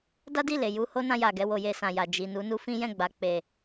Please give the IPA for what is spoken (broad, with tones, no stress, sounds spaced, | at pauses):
d a˦ d i˦˨ l e˨ j u˧ h o˦ n ã˧ j a˨ ɡ ɛ˧ w o˧ j e˧ s ã˨ j a˨ d͡ʒ i˨ n u˨˦ n u˦ f ĩ˦ j ɛ̃˦˨ ɡ͡b a˨ k͡p e˨